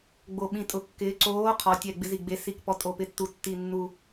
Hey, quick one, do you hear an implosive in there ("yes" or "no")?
yes